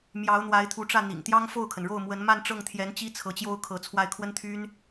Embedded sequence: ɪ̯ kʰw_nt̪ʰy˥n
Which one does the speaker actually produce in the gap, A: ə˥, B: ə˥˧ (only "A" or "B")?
A